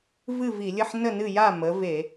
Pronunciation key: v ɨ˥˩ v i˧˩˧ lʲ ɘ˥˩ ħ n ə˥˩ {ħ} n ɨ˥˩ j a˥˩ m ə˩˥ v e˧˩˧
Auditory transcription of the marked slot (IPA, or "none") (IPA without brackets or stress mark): none